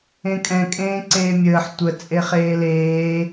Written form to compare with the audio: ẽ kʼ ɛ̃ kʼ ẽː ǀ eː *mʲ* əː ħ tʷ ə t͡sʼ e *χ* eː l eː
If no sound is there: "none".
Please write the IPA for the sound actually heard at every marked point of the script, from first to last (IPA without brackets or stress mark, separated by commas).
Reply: mʲ, χ